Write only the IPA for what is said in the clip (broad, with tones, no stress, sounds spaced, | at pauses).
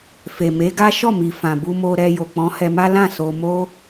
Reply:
f e˨ m e˨˦ ɡ a˦ ʃ ɔ˦˨ m i˨ f ã˨ b u˧ m o˧ ɾ ɛ˧ j o˨ k͡p ɔ̃˨˦ h ɛ˧ m a˦ l ã˦˨ s o˧ m o˦